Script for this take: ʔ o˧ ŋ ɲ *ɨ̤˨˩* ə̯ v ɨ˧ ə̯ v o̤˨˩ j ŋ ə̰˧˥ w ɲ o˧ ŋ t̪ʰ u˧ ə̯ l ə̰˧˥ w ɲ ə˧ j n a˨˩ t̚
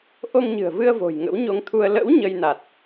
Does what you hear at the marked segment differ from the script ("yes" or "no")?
no